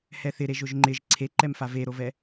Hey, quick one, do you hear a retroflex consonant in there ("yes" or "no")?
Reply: no